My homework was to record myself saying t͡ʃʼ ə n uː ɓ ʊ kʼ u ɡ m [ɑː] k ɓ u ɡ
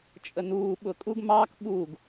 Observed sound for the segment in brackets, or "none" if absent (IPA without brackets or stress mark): ɑː